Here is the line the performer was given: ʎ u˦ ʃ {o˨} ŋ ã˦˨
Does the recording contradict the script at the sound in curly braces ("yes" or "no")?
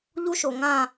no